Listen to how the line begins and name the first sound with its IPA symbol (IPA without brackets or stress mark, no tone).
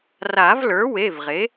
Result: r